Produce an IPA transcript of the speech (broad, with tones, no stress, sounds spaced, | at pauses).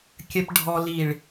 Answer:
kʲ ə˨ p ɖʱ ɔ˨ l i˨ ɭ